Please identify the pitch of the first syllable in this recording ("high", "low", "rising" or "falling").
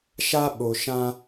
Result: high